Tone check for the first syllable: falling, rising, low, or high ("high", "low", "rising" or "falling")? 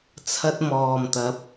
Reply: high